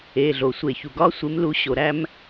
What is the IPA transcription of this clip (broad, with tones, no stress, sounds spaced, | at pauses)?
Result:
e˩˧˩ ɮ o˩ sʷ e˧˩˧ ç u˩ ɡ ɒ˦ sʷ e˨˦ m l u˨˦ ɕ o˩ ɾ æ˦ m